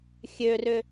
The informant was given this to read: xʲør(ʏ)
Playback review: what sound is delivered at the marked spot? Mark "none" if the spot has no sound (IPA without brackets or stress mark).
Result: ʏ